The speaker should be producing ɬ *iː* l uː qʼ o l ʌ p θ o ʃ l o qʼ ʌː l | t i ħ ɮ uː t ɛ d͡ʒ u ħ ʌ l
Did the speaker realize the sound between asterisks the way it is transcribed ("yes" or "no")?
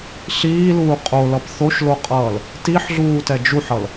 yes